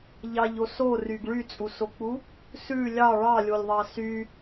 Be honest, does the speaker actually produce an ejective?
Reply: yes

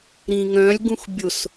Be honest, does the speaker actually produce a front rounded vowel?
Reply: yes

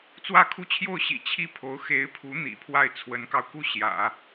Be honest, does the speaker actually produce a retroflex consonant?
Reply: no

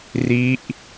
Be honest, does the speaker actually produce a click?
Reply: no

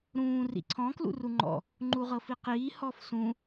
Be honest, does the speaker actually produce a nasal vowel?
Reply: yes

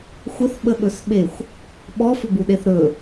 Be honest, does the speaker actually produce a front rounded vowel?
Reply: yes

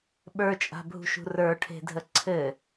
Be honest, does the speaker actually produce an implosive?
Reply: yes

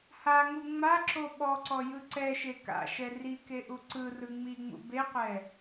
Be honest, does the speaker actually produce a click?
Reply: yes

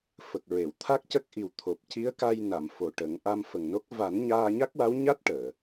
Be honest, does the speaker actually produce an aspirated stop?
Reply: yes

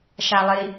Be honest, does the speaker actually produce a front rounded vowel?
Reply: no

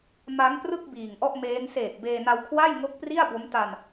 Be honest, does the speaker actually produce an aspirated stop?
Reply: yes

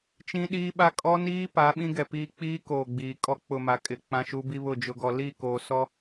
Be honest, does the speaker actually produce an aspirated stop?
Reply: no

